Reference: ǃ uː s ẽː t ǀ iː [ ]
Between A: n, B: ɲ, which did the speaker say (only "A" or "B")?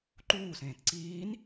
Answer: A